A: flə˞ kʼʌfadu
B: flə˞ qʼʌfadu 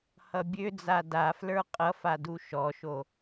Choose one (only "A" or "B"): B